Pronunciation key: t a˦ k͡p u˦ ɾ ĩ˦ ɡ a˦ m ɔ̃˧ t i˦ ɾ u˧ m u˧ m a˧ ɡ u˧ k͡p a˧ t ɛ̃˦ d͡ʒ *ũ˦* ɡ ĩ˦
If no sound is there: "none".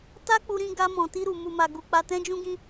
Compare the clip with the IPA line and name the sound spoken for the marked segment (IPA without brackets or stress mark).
ũ˦